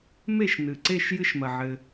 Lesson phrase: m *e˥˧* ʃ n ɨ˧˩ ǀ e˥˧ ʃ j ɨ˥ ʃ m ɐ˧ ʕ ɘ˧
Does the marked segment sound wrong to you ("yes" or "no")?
no